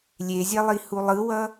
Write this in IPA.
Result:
lʲ e zʲ ɛ lˠ i h u lˠ ɯ w ʌ

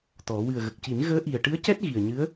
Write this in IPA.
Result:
t̪ ɔ˨˩˦ w ɨ˨˩ ə̯ ɣ ə˨˩ k̚ c i˨˩˦ n ɣ əː˧˥ ʔ i˨˩ ə̯ ʈ ɨ˧˥ ə̯ c ɛ˦˥ t̚ ɣ i˨˩ ə̯ ɲ ɨ˧˥ ə̯

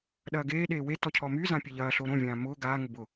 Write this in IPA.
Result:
ɗ ɐː ɡ eː ɗ eː w e t ɔ cʰ ɔ m y z ã pʲ e ʎ ɐː ɬ o ɾ õ vʲ ãː m ʊː ɡ aː ŋ ʊ b ʊ

